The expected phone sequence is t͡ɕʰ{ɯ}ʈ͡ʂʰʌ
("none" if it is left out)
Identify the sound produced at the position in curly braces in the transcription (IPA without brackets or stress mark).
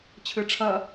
ɯ